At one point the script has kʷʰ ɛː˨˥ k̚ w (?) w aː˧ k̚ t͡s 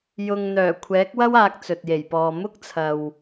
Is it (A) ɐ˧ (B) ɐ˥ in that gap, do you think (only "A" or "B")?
B